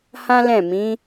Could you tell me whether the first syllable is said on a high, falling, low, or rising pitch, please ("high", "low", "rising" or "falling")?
high